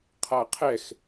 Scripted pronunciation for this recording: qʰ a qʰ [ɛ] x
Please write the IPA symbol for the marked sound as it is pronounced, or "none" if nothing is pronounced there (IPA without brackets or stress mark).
ɛ